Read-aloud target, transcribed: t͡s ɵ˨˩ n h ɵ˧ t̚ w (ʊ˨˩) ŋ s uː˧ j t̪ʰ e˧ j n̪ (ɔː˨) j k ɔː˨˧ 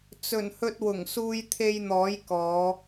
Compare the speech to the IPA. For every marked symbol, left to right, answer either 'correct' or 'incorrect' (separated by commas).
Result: correct, incorrect